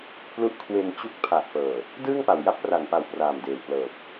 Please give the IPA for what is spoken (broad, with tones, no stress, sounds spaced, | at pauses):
p l u˦˥ ʔ kʰ w e˧ n t͡ɕ u˦˥ k̚ pʰ a˨˩ ʔ p ɤː˨˩ | d ɯː˥˩ ŋ p a˨˩ w j a˥˩ p̚ r a˨˩ n p a˨˩ w p r aː˨˩ m d eː˨˩ w p l ɤː˨˩ p̚